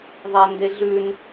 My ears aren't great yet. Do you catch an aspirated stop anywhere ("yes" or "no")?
no